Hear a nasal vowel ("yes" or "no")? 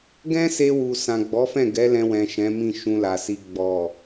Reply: yes